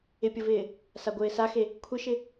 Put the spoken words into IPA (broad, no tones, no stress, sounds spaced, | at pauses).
ɪ pʲ ə v ɪː | s a ɡʷ ɪː s a x e | kʷʰ ɪ ʃ ɪ